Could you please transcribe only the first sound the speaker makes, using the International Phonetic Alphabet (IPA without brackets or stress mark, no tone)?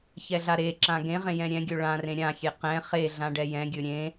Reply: ç